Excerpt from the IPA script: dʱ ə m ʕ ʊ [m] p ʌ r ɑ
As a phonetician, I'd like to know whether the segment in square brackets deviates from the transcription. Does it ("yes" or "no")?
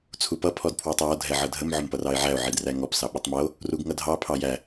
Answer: no